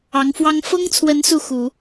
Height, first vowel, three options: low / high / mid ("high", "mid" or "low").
low